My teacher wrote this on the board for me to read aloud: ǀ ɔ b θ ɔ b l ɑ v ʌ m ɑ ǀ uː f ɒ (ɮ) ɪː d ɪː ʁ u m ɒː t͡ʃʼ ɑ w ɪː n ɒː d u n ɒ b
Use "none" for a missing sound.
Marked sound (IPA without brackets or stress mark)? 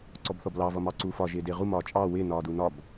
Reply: ʒ